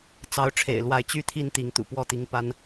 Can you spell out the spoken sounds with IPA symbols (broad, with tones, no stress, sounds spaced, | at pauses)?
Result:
t͡s ɑ˨˦ ʊ̯ ʈ͡ʂʰ ḛ˨˩ ɪ̯ l w a˨˦ ɪ̯ t͡ɕ y˦ t̪ʰ i˦ n t̪ i˨˦ ŋ t̪ ṵ˨˩ p w ɔ˥˨ t̪ i˨˦ ŋ p a˦ n